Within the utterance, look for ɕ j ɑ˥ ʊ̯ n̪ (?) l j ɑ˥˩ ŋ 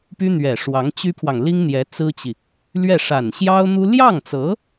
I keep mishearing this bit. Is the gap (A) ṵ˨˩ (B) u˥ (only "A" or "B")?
B